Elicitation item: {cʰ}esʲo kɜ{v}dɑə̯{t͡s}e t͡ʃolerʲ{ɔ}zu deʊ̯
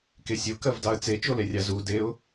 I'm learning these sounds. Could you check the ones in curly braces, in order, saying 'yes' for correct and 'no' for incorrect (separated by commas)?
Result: no, yes, yes, no